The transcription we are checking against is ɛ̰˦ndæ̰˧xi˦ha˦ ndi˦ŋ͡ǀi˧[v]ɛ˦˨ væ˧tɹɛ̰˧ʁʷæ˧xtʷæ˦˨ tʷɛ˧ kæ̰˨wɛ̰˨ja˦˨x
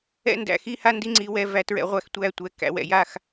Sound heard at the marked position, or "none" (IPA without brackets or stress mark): w